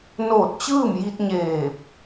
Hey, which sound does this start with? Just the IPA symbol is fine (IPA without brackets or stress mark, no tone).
n